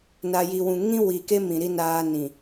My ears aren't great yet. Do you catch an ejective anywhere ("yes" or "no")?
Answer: no